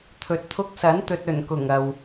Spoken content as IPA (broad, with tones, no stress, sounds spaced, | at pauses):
t̪ʰ ɵ˨ t̚ t̪ʰ ʊ˧ k̚ s ɐ˨˥ n t̪ ɵ˨ t̚ ɵ˨˩ n k ʊ˨˩ ŋ ɐ˨ w